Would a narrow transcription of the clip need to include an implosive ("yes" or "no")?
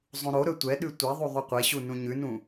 yes